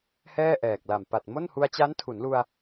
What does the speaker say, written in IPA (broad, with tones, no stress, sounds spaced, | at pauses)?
h ɛː˥˩ ʔ ɛː˨˩ k̚ l a˨˩ m p a˨˩ t̚ m o˥˩ n h u˧ a̯ t͡ɕ a˦˥ n tʰ u˩˦ n l u˧ a̯